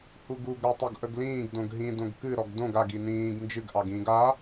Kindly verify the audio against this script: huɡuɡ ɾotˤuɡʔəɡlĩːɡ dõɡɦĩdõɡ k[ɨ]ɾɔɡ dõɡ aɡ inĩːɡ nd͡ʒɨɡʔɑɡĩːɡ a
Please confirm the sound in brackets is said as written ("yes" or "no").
yes